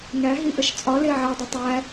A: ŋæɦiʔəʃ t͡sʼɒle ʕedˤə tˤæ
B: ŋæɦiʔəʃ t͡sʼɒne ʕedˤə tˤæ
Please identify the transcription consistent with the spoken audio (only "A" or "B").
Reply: A